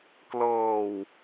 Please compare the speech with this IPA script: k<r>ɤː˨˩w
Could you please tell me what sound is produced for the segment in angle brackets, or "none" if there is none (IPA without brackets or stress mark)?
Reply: l